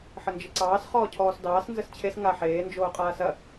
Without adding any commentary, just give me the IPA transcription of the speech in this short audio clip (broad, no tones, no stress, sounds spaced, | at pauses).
ħ ə n d͡ʒ ə ǀ ɑː s χ ɔː cʰ ɔː s d ɑː s n z ə s t͡ɕʰ e s ŋ a ħ eː n d͡ʒ oː qʼ aː s ɐ